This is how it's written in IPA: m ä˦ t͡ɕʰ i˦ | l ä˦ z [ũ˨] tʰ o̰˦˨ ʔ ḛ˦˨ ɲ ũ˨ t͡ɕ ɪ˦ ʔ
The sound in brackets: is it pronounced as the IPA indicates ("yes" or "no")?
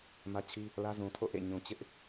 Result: yes